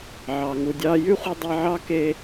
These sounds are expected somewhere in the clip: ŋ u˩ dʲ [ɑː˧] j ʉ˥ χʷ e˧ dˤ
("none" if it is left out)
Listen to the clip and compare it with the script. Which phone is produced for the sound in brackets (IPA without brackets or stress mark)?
ɑː˧